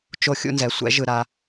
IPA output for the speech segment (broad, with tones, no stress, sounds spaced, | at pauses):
t͡ʃ o˥˨ xʲ ṵ˦ n z ɛ˩˥ sʷ ɛ̰˩˥ ʒ ɯ˧˩˧ ɾ a˩˧